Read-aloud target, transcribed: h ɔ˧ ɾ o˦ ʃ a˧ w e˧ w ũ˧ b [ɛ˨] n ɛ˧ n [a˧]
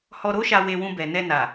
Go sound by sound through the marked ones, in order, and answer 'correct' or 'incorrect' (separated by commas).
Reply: correct, incorrect